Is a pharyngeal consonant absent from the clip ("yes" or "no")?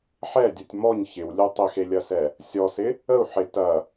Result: no